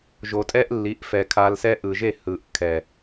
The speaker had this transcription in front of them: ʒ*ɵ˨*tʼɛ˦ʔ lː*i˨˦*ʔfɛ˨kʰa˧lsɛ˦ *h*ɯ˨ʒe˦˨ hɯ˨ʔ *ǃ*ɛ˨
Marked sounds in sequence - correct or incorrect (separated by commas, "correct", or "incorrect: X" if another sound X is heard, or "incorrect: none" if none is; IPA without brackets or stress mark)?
incorrect: o˨, correct, incorrect: ʔ, incorrect: kʰ